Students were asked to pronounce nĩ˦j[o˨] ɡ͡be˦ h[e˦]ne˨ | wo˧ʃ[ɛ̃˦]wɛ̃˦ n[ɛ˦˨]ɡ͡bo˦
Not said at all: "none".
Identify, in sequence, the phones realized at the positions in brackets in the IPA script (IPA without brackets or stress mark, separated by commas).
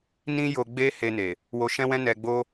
o˧, e˧, ɛ̃˦, ɛ˧